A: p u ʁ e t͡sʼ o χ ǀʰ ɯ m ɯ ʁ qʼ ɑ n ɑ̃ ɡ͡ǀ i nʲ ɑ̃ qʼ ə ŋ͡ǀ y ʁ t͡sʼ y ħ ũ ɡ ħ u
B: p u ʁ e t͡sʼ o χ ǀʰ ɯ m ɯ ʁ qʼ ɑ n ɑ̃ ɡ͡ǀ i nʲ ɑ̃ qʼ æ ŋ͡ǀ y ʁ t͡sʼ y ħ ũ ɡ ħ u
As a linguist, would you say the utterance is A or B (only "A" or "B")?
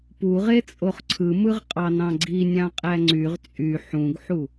B